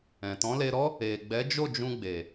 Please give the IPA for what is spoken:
ɛ̃˨ t ɔ̃˨˦ l e˧ ɾ ɔ˦ | e˨ ɡ͡b ɛ˨˦ d͡ʒ o˦˨ d͡ʒ ũ˧ ɡ͡b e˨

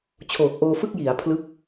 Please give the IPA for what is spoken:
t͡ɕʰ oː˨˩ k̚ ʔ oː˧ f ɯ˥˩ k̚ j i˩˦ a̯ pʰ l ɯ˦˥ k̚

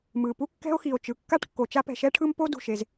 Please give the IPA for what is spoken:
m ɯ˩ p u˥ kː ɛ̤˥ o̯ x i˩ o̯ t͡ʃ ɯ˩ kː a˥ ʈ kː o˩ t͡ʃ a˥ p ɛ̤˩ ʃ ɛ˥ ʈʰ ɯ˥ m p o˥ d ṳ˩ ʃ e˩ z

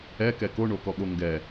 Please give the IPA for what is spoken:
ɛ k ɛ k o ɳ o k ɔ ɠ o ŋ ɡ ɛ

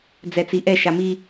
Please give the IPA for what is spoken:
d͡z ɛ t͡s i ʔ ɛ ʃ a m i

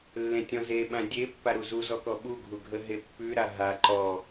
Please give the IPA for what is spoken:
lː ẽ tʲ ɔ̃ z e ɓ ã dʲ e pː a ɾ u z u z ɔ k ɔ ɓ u ɡʱ u ɡʱ ə ɦ e pː ʉ ɾ a ɦ a ǃ ɔ

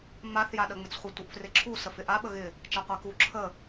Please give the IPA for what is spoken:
m a θ j a ɗ ə ŋ͡m ɪ t͡s χʷ ə tʷ ɪ ʔ f r ɪ ǁʰ u s ə f ɪ ʔ a ɓ ə ɣ ɪ | t͡ʃ a qʷ a k u ǁʰ ə

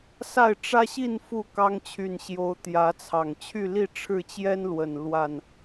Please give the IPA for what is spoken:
s a˥˨ ɪ̯ ʈ͡ʂ ä˦ ɕ i˥˨ n f u˥˨ k ɑ˦ ŋ t͡ɕʰ y˨˩ n ɕ j o˨˦ ʊ̯ t̪ j ä˨˦ t͡sʰ ɑ˨˩ ŋ t͡ɕʰ y˥˨ l i˥˨ ʈ͡ʂʰ ɻ̩˥˨ t͡ɕ j ɛ˦ n l w ə˨˩ n l w a˥˨ n

